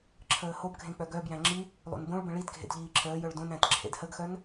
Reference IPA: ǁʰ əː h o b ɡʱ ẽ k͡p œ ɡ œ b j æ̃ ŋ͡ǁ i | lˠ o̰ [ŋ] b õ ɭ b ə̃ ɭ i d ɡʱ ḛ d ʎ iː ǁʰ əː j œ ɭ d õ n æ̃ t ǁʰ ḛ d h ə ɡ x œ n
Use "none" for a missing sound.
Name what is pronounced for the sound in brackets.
n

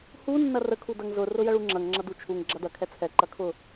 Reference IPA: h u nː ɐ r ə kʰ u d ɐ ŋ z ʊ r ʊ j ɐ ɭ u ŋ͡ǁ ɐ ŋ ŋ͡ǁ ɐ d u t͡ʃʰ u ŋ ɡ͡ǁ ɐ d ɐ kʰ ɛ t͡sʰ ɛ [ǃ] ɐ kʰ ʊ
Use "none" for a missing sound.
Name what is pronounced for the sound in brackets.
ǃ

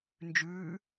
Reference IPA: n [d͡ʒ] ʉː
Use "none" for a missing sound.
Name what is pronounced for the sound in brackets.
d͡ʒ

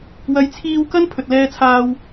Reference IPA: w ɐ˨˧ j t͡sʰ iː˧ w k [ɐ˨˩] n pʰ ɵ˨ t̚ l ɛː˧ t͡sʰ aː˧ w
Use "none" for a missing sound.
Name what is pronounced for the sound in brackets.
ɐ˥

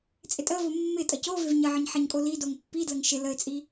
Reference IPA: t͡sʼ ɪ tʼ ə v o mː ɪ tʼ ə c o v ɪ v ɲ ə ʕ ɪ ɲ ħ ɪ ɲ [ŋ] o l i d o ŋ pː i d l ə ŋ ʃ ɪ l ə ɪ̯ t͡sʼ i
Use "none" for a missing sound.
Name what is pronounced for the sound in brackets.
kʼ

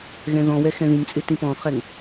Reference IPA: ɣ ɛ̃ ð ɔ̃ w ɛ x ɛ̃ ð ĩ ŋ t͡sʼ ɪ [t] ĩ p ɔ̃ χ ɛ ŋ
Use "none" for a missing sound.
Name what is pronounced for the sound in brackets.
t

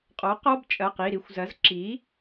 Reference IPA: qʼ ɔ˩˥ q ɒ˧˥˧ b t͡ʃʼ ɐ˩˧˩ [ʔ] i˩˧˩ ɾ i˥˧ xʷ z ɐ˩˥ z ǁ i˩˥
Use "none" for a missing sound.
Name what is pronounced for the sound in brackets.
q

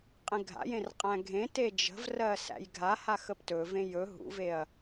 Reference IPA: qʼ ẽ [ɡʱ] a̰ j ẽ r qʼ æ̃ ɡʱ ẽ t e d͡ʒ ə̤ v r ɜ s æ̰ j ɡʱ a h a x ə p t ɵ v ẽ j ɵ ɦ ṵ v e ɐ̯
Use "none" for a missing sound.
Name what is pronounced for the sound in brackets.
ɡʱ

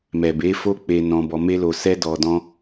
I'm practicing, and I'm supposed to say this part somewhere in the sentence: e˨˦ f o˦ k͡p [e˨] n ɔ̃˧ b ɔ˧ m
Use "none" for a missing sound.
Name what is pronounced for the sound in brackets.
e˧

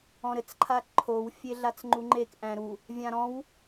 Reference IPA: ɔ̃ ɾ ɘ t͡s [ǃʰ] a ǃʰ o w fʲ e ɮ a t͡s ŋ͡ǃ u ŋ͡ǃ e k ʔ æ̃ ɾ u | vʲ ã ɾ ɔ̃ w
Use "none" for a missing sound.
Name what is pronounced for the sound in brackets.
ǃʰ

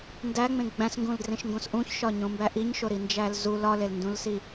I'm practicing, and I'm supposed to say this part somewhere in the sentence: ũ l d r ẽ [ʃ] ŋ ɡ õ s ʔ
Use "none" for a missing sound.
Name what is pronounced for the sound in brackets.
ʃ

